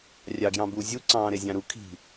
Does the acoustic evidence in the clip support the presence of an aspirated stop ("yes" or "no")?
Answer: yes